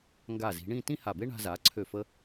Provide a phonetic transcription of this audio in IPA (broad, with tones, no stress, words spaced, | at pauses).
ŋɡa˧˩zi̤˩˧ɳĩ˥˧ tĩ˥ha˧˩be˥ ɳa̤˧za˩˧ ǀʰø˧˩fə˧